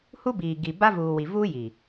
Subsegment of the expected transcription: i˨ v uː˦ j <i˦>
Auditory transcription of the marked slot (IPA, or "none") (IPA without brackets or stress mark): i˨